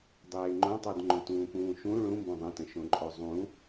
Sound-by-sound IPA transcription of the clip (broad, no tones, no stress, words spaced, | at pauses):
dˤeːŋ͡ǃõtˤʉd ŋ͡ǃõtũːpũːʃũ ɭũmbõ ðˤə̃tə̃ʃõǃʼo zˤũ